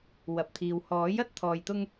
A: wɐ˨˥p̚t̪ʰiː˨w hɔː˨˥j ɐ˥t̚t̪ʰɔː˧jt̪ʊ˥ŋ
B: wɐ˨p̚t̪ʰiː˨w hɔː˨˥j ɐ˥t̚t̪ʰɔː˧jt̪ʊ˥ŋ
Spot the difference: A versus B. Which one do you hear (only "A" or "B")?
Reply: B